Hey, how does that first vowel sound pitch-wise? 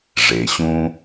low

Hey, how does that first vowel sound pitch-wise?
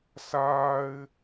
high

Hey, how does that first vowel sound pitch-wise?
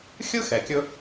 high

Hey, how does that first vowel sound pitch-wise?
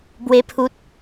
high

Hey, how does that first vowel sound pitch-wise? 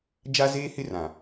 high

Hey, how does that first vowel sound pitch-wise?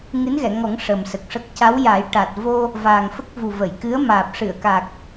rising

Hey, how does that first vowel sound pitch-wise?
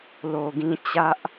low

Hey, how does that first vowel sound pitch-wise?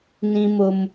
low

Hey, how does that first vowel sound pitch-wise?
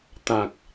low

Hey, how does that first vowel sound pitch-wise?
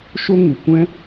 high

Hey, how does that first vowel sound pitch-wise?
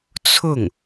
falling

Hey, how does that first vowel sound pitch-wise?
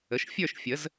rising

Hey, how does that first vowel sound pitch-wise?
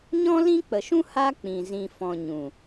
high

